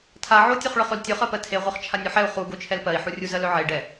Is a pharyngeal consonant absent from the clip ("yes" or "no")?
no